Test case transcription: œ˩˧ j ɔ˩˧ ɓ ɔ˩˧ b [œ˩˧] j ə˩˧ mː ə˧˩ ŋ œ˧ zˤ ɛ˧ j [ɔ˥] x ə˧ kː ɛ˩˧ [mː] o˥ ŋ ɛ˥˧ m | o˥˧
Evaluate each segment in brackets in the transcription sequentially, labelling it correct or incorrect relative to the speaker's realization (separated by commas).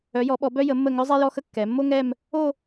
incorrect, incorrect, correct